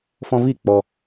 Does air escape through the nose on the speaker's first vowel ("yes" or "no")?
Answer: yes